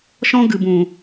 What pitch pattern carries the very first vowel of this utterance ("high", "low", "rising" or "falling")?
high